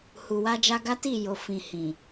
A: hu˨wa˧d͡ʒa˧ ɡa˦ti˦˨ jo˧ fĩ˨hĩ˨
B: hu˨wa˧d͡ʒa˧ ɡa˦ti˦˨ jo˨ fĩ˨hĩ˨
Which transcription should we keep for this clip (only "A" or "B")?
B